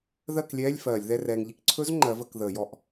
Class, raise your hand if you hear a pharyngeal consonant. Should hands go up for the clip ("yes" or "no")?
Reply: no